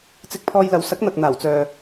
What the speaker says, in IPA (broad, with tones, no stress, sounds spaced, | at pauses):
t͡s ɪ˧ k̚ pʰ ɔː˧ j l ɐ˨˧ w s ɐ˨˥ k̚ n̪ ɐ˨ k̚ n̪ aː˨˩ w t͡s œː˨